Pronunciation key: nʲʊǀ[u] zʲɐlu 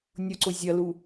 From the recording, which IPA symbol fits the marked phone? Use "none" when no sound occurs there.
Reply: ʊ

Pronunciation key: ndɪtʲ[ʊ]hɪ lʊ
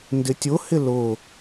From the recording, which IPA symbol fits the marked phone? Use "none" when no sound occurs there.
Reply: ʊ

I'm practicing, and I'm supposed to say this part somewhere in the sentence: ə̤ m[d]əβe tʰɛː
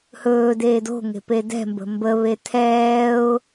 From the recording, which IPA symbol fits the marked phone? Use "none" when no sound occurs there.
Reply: b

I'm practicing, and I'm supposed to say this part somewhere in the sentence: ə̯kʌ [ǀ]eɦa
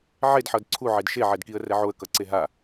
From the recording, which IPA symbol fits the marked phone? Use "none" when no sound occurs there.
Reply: ǀ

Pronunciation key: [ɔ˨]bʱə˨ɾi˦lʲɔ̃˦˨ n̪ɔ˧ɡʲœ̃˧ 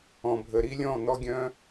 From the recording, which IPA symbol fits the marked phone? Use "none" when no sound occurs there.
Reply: ɔ̃˨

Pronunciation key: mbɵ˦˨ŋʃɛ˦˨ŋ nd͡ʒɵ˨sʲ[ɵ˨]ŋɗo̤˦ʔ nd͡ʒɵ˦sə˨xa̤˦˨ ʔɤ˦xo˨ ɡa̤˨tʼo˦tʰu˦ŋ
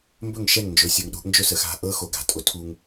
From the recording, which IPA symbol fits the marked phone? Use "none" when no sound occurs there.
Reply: ɤ˨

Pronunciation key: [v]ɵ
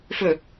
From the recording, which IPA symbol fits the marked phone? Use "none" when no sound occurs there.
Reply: f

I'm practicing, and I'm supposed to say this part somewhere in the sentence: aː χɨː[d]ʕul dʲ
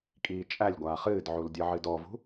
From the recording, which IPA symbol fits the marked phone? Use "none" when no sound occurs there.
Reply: d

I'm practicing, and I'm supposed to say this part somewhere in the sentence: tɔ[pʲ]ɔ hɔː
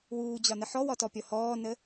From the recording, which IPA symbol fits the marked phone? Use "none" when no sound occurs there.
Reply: pʲ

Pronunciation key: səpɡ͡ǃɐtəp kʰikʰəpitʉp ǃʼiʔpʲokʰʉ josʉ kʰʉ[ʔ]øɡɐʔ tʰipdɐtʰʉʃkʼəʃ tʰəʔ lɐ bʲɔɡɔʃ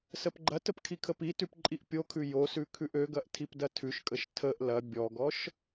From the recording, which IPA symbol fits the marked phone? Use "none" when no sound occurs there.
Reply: ʔ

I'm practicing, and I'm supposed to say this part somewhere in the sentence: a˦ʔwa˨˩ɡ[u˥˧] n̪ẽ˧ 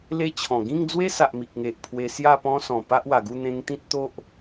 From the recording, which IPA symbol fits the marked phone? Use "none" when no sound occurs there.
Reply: u˥˧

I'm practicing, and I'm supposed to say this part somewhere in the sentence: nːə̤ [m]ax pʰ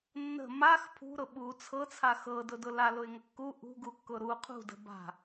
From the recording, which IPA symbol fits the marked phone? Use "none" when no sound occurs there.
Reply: m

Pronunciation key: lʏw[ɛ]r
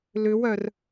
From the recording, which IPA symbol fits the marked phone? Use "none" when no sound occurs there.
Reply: œ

